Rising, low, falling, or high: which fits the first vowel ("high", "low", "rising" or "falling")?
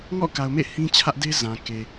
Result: falling